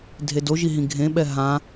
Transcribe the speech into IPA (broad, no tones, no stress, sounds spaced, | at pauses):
dʱ e d o ʒ i ɦ ĩ ɡʱ ẽ ɓ ɛ ɦ ã